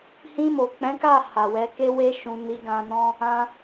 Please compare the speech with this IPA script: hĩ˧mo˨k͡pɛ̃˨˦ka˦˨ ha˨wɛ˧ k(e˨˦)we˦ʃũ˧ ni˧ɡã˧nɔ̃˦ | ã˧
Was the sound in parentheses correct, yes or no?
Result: no